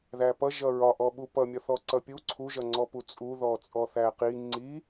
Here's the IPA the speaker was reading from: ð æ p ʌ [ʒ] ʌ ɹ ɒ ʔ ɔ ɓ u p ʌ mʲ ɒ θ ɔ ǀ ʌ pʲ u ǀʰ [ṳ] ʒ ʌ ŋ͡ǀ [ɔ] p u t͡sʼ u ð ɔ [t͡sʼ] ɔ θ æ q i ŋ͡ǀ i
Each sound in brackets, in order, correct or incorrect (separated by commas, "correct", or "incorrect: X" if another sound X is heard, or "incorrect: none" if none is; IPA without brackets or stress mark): correct, incorrect: u, correct, correct